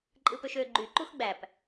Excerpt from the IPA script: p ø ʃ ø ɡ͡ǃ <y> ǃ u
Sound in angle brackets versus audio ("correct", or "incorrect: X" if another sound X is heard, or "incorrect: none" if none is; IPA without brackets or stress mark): correct